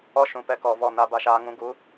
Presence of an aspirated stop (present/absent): absent